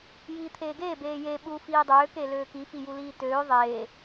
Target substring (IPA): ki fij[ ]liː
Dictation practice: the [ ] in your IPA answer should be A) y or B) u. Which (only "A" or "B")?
B